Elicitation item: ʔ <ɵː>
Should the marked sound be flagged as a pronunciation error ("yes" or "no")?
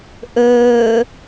no